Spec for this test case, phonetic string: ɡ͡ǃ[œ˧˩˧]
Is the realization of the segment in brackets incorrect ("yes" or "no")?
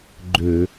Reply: yes